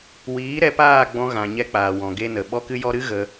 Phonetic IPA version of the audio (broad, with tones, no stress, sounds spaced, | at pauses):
w iː˨˦ ɾ ɛ˧ p aː˦˨ ɡ͡b ɔ̃˧ ɣ ã˨ ɲ ɛ˧ k͡p aː˨ w ɔ̃˨ ɡ e˧ n ə˨ ɓ ɔ˧ k ɨ˧ j ɔ˧ ɾ ɨ˦ ɣ ə˧